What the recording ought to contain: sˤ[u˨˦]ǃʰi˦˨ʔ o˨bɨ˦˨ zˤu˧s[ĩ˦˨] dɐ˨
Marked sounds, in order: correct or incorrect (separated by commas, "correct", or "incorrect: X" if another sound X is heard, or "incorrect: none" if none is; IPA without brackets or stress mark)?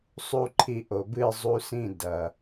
incorrect: u˦, correct